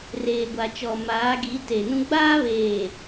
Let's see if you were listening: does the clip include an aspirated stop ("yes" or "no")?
no